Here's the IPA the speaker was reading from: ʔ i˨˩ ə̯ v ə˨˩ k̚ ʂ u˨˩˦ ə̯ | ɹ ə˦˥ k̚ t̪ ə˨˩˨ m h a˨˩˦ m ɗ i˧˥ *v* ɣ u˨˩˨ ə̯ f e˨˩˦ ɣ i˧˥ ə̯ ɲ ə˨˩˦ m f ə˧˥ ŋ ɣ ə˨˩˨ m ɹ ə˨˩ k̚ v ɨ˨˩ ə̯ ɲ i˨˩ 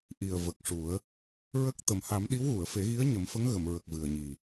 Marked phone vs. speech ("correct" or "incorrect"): incorrect